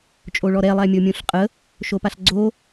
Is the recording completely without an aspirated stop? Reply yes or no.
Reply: yes